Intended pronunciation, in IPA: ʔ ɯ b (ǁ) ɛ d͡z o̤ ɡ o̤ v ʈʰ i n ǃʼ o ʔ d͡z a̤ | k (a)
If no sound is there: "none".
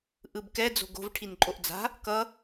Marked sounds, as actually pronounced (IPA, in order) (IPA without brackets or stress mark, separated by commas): k, ʌ